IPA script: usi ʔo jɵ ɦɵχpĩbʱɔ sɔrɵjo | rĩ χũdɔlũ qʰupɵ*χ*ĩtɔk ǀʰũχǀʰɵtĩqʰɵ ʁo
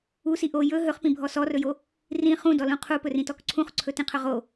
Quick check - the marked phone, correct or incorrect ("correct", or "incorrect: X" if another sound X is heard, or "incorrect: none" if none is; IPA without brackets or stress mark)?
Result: incorrect: r